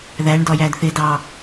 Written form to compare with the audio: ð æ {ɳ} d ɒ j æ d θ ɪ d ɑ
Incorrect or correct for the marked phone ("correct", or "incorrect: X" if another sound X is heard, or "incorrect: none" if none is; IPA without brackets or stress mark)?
correct